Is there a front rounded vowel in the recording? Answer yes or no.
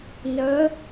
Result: yes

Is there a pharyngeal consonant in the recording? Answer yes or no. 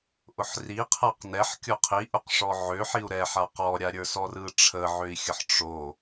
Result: yes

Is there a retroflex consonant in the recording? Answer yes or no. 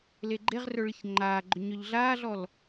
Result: yes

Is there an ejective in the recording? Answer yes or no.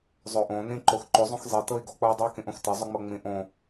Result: no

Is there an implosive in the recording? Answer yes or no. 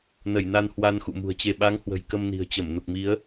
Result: yes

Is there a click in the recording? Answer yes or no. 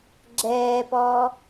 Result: yes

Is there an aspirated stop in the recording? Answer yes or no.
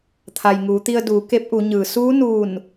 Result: yes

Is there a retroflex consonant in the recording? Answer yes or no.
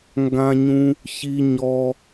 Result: no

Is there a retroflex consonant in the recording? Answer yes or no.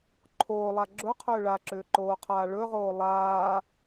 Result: yes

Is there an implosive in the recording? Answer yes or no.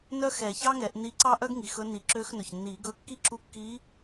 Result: no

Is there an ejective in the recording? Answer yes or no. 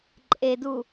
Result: yes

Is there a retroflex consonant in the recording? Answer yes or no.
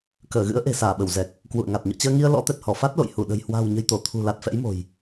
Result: no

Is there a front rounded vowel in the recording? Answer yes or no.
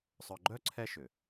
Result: yes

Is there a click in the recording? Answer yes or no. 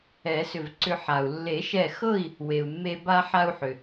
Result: yes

